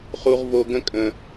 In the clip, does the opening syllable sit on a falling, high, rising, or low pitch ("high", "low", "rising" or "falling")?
high